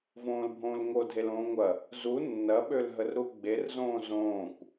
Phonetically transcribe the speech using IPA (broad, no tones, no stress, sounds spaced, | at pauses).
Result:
v õː l bʱ õː l ŋ o dʱ e l õː ŋʷ ɐ | z u nː ɐ ɓ ø l ɦ ə r ɾ u ɡ͡b e r z õː z õː kʷ